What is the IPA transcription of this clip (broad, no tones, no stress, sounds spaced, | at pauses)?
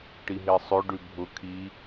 ʈ i ɦ e sˤ ø ɖ ʉ bʱ ʊ kʰ i